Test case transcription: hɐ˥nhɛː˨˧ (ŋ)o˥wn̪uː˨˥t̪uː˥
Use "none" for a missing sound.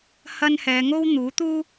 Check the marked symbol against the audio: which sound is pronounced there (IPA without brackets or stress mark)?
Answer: ŋ